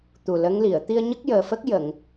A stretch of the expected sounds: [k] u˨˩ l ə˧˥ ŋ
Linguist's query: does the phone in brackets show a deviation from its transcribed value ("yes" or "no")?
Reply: yes